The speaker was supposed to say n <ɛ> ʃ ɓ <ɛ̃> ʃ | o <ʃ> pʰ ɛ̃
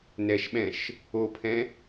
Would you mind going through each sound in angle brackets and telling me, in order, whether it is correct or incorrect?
correct, correct, incorrect: none

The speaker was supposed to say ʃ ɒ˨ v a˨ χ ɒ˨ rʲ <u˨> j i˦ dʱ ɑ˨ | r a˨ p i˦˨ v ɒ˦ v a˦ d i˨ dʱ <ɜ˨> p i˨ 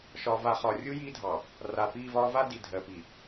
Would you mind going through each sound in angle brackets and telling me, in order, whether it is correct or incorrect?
incorrect: u˦, correct

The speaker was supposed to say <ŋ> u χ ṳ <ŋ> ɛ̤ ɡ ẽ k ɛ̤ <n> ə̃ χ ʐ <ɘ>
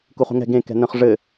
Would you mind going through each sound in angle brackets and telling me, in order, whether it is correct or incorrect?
incorrect: k, correct, correct, correct

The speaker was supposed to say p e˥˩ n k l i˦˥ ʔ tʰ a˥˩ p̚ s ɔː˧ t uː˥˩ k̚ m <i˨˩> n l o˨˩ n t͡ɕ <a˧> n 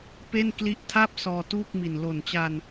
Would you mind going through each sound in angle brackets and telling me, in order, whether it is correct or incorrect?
correct, correct

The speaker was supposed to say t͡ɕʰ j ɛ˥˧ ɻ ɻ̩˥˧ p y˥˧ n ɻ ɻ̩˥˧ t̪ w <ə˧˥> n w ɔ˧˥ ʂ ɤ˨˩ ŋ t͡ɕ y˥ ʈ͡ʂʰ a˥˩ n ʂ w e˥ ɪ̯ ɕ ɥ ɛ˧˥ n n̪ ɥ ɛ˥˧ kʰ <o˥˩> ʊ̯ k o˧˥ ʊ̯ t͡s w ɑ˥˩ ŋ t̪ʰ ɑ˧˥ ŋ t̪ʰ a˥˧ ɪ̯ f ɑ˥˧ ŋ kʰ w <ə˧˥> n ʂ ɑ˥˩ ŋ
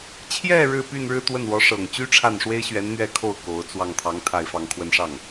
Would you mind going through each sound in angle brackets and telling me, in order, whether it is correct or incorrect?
incorrect: ə˥˩, correct, incorrect: ə˥˧

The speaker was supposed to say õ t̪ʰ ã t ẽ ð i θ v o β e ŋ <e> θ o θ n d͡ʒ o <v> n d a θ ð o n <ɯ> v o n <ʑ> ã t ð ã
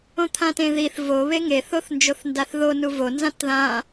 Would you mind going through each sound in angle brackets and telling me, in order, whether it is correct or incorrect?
correct, incorrect: θ, incorrect: u, incorrect: z

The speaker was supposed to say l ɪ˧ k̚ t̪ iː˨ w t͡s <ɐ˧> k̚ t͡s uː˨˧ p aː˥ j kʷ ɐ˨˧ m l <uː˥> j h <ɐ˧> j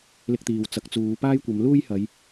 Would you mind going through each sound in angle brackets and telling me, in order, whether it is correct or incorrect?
incorrect: ɐ˨˥, correct, incorrect: ɐ˨˧

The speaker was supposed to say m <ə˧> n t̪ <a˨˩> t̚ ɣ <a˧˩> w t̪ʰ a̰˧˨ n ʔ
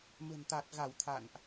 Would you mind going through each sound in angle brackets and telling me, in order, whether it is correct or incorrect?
incorrect: ə̤˨˩, correct, correct

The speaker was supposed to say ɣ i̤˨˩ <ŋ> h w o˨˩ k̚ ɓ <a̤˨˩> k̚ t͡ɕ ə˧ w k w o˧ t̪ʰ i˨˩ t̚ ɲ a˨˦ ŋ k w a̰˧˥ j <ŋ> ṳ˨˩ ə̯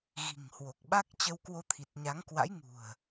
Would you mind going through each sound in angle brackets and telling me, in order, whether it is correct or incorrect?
correct, incorrect: a˦˥, correct

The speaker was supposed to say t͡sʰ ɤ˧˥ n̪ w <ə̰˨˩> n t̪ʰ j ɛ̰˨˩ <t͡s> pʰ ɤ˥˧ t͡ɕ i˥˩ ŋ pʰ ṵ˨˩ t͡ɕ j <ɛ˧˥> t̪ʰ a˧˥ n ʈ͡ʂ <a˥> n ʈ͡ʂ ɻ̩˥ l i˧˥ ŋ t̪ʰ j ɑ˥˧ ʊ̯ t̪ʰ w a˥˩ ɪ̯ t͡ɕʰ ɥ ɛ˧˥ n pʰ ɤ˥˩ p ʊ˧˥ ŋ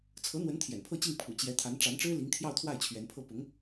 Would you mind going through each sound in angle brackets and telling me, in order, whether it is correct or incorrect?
incorrect: ə˧˥, incorrect: n, correct, incorrect: a˧˥

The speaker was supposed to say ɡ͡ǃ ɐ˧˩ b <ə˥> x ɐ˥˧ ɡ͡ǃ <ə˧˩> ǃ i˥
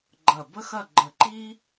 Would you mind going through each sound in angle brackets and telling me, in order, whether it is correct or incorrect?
correct, correct

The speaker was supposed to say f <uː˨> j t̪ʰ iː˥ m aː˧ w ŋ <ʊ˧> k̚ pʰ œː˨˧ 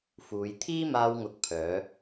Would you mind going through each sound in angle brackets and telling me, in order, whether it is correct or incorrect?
incorrect: uː˨˧, incorrect: ʊ˨

